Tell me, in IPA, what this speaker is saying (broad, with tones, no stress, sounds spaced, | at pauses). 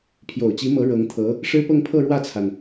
pʰ j o˨˩ ʊ̯ t͡ɕ i˧˥ m ɤ˧˥ ɻ ɤ˧˥ ŋ t̪ʰ ɤ˧˥ | ʂ ɻ̩˥ p ɤ˥˧ ŋ pʰ ɤ˥˧ ɻ w ä˥˩ t͡sʰ a˩ n